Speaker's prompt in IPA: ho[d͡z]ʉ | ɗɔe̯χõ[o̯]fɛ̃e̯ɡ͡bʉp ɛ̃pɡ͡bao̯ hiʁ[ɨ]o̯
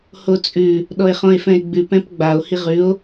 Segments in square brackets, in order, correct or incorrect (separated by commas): incorrect, incorrect, incorrect